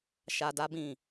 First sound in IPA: ʃ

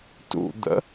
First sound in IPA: t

